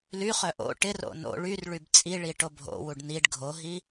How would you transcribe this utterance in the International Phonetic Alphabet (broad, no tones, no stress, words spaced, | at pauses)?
lyχœ ʔo̰ ʈɪro̰ no̰ ɭyrɭyb t͡sʼiɭi ʈobʱo̰wuɖ niɖ ɡʱoɦi